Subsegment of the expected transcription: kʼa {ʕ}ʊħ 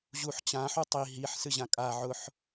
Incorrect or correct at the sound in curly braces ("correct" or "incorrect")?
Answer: correct